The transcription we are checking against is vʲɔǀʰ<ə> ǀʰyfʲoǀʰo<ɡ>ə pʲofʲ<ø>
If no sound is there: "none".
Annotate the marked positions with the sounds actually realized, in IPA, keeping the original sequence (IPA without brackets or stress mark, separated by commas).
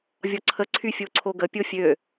ə, ɡ, ø